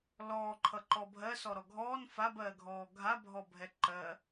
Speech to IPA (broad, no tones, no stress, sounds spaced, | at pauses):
l ɔː ǃʰ ʌ ǃ ɔ bʱ ɜ s ɔ ɾ ɔ ɡʱ ɔː n f a b ɜː ɡʱ ɔː ɡʱ a bʱ ɔ bʱ ɛ ǃ ɜ